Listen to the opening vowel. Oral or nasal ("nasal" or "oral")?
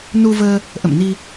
oral